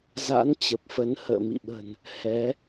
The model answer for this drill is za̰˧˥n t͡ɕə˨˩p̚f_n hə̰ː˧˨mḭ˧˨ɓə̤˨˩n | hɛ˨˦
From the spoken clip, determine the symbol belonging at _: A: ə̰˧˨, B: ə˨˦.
B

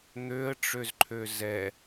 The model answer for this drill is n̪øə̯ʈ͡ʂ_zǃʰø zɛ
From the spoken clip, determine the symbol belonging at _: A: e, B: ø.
B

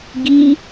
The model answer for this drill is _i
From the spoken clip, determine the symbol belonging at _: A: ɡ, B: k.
A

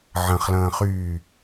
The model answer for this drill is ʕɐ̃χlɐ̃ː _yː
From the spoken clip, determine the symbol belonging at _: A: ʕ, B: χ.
B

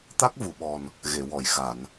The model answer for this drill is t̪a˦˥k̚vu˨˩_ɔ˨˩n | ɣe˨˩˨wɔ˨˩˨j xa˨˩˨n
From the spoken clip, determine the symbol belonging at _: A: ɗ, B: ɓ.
B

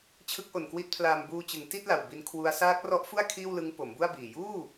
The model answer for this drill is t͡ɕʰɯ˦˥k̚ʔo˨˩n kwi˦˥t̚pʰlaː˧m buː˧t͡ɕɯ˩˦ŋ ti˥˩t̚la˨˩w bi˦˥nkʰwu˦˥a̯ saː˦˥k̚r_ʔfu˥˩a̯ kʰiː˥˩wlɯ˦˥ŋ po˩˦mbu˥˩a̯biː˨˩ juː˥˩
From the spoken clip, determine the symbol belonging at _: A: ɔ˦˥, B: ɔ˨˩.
A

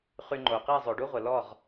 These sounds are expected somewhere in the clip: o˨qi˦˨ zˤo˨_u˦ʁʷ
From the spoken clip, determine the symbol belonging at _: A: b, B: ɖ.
B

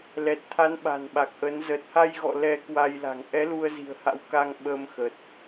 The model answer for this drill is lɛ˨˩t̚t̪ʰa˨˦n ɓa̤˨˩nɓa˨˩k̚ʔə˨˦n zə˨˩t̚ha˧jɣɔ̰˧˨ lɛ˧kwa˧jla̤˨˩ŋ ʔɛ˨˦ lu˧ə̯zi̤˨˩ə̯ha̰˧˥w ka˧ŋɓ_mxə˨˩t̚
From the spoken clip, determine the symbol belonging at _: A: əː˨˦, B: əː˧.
B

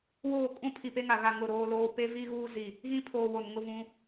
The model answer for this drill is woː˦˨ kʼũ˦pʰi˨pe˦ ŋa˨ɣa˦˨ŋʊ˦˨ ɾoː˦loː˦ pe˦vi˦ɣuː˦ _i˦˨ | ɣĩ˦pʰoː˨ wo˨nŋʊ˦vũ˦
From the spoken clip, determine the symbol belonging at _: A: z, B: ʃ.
A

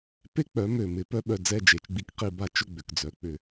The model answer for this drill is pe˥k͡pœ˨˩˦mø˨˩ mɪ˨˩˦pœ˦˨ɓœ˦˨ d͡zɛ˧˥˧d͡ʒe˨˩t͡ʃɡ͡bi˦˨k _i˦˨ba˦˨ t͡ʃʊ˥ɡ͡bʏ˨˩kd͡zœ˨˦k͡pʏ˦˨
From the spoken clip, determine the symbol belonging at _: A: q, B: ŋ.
A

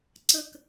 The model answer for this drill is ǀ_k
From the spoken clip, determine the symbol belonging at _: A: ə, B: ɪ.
A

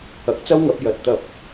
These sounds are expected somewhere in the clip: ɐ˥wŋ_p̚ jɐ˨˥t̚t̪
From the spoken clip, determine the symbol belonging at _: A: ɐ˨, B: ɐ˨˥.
B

